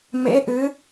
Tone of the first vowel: rising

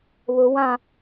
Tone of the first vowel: low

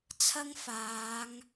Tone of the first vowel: high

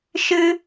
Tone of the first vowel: high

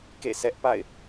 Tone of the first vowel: falling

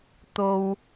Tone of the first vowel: low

